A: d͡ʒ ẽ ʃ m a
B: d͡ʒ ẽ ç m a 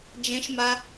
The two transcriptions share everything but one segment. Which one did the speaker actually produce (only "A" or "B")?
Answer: A